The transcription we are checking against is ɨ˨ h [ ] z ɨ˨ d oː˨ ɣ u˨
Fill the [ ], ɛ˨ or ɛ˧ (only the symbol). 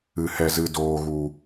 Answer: ɛ˨